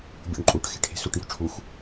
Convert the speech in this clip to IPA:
bʲ ṵ ɳ ǃʼ u ʈ x e̤ ʈʰ e̤ s u ʈ j o̤ ʈ͡ʂʰ u x

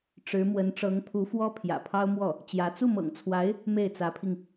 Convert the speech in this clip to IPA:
ʈ͡ʂ ɻ̩˧˥ m w ə˧˥ n ʈ͡ʂ ɤ˧˥ ŋ pʰ u˧˥ f w ɔ˥ pʰ j ä̰˨˩ pʰ ɑ˥ ʊ̯ m w ɔ˥˩ | t͡ɕ j ä˧˥ t͡s u˥˩ m ɤ̰˨˩ ŋ t͡sʰ w a˧˥ ɪ̯ | m e˥˩ ɪ̯ t͡s ä˧˥ pʰ i˧ ŋ

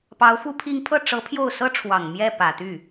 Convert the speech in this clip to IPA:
p ɑ˧˥ ʊ̯ f u˥˧ pʰ i˥˧ ŋ pʰ ɤ˥˩ ʈ͡ʂ ɤ˧˥ pʰ j o˥˩ ʊ̯ s ɤ˥ ʈ͡ʂʰ w ɑ˨˩ ŋ m j ɛ˥˩ p ä˨˩ t̪ y˥˩

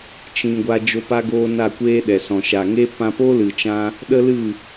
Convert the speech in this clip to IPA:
t͡ʃ ĩ˧ ɡʷ a˧ d͡ʒ o˧ p a˧ ɡ oː˧ n a˦˨ kʷ eː˦ ɗ ɛ˨ s ɔ̃˨ ʃ a˨ ŋ e˦ p ã˧ p o˦ l ɨ˨ t͡ʃ ã˧ | ɗ ə˦ l ɨ˦˨

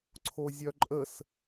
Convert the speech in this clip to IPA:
ǀʰ o zʲ œ ǃʼ ə s

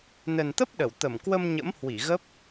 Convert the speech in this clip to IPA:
n ə˨˩ n t̪ ə˦˥ p̚ ɗ ə˧˩ w t̪ ə˧˩ m k w ə˧ m ɲ ə̰˧˥ m h w i˧˩ ɣ ə˦˥ p̚

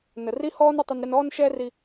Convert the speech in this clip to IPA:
n ə˩ r i˥ h ɔː˥ n ʊ˧ tˤ ɪ˧ n ɾ ɪ˧ n ɔː˥ n ʃ ɛː˥ r i˧

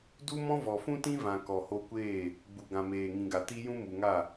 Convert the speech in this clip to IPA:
d u˦ m ɔ̃˦ v ɔ˨ f ũ˦ t ĩ˦ v ã˨ k ɔ˨ h o˧ kʷ eː˦˨ | ɡ͡b u˨ ɡ ã˨ m eː˨ ŋ ĩ˨ ɡ a˨ t i˧ j ũ˦ m u˨ ŋ a˦˨

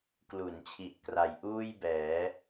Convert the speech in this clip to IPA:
k l u˩˦ n t͡ɕʰ i˨˩ ʔ k r a˨˩ j ʔ uː˥˩ j b ɛː˩˦

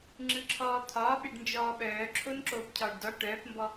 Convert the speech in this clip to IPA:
ŋ͡ǁ ɯ ǁʰ ɔː t̪ʰ ɒː ɓ e ɖ n d͡ʒ ɔː ɓ œː ǁʰ o n ǁ oː p cʰ ɒː ɖ d ɒ ʈ œː p m b ɔ

